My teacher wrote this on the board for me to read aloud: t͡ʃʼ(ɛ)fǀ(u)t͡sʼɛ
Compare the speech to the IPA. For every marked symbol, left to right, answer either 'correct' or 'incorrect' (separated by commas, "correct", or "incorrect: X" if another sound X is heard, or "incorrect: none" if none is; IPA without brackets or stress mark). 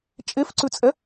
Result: incorrect: e, incorrect: ʉ